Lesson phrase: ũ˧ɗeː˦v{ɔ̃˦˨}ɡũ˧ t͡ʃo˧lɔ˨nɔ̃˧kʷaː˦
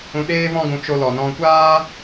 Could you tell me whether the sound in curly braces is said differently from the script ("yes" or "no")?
yes